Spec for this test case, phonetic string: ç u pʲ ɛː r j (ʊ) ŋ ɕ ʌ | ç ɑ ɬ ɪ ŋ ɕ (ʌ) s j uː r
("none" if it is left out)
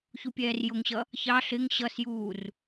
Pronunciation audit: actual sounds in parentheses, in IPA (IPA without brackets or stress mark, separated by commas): ʊ, ʌ